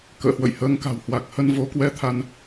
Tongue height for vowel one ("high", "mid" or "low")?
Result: mid